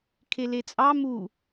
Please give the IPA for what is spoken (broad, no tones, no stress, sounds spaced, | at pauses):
kʰ e l e t͡sʼ ɑ m u